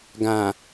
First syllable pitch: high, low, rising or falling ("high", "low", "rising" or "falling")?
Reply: low